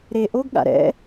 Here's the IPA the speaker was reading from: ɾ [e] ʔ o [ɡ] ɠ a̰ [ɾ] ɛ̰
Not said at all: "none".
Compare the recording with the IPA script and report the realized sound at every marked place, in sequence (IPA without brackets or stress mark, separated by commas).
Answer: e, ɡ, ɾ